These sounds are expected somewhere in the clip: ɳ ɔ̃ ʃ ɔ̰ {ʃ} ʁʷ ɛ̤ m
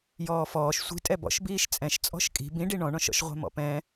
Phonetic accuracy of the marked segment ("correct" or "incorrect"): correct